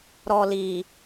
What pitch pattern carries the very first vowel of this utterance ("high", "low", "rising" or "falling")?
low